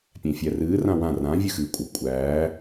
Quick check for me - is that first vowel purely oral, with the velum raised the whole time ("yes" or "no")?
no